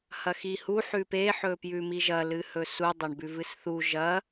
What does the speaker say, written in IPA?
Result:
h ɐ x i h u ħ ʉ p e ħ ɵ p j ʉ m i ʒ ɐ l ɨ h ɵ s u dˤ a ɳ b ʉ v ɨ s θ u ʒ ɐ

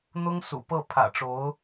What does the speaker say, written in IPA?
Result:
n̪ ʊ˥ ŋ s ṵ˨˩ p ɤ˥˩ pʰ ä̰˨˩ ʈ͡ʂ o˧˥ ʊ̯

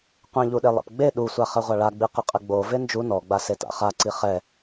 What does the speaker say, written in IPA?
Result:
qʷ ĩ ʎ u ɗ e lˠ ɛ̰ p ɡ͡b e ɗ u sʷ a χ ɛ ʁʷ a ɭ a ɡ͡b i q ɪ qʼ ɪ ɡ͡b o v e n d͡ʒ u n ɔ ɡ͡b a s e t a̰ χ a ǀ i χ ɛ

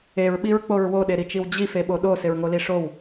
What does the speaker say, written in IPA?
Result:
e ɹ ɓ i ɹ k͡p o ɹ w o ɗ e ɾ i t͡ʃ i w d͡ʑ i f e ɓ o ɗ o s ɪ ɹ ŋ o l i ʂ o w

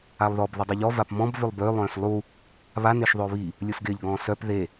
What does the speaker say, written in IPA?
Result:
a lˠ ð ɔ b ð ɪ dˤ e ʎ ɔ v a p m ɔ̃ b v ʏ lˠ b ø lˠ œ̃ː s lˠ u | β a n ɪː ʃ ðˤ ʏː β i | lʲ u s ɡ ɪː ʎ ɡ ɔ̃ː s œ p ð e

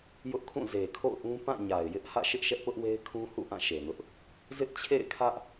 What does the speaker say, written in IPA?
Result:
j ʊ˦ ʔ kʰ ũ˦˨ z e˨ kʰ o̰˦˨ ʊ̯ ʔ ũ˦ p ã˦˨ ɲ a˨ ɪ̯ j ɪ˦ ʔ h ä̰˦˨ ʃ ɪ˦ ʔ ʃ ɛ˦ ʔ p ʊ˦ ʔ w e˦ ɪ̯ kʰ ũ˦ h ṵ˦˨ ʔ ã˦˨ ʃ e˨ n ʊ˦ ʔ | z ɪ˦ ʔ t͡ɕʰ ḛ˦˨ ɪ̯ kʰ ä˦ ʔ

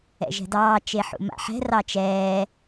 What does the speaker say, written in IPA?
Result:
ɛ̰ ʒ ɛ̤ d ɑː t͡ʃ e ħ ṵ m a̰ ħ ɛ̤ r ɑ t͡ʃ ɛː

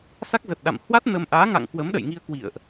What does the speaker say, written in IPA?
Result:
s a˦˥ k̚ z ə˨˩ t̚ ɗ a̰˧˨ m h w a˦˥ t̚ n ə˧ m ʔ aː˨˦ ŋ a̰˧˨ ŋ k w əː˨˦ m ɗ ə̰˧˨ j ŋ i˧ ə̯ k w ḭ˧˨ ə̯ ʔ

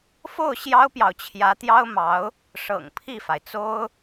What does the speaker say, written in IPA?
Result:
f o˥˩ ʊ̯ ɕ j ɑ˥ ʊ̯ p j ɑ˨ ʊ̯ t͡ɕʰ j ä˧˥ t̪ j ɑ˥ ʊ̯ m ɑ˧˥ ʊ̯ | ʂ ɤ̰˨˩ ŋ pʰ i˥˩ f a˩ ɪ̯ t͡s o˥ ʊ̯

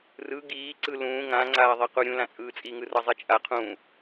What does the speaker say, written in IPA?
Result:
r ɯ ɡ iː ǀ ɯ l ũː ŋ ã ŋ͡ǀ aː ðˤ e q u ɾʲ ũ l ã t͡sʼ ɯː t͡sʼ i ŋ ɯ r ʌ zˤ i t͡ʃʼ a qʰ ũ

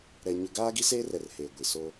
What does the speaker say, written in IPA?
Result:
ɾ ɛ˦ ɲ ʊ˦ ɡ aː˦ ɡ i˦ s eː˦ r ɛ˨ r h eː˨ ɡʷ i˨ s oː˦

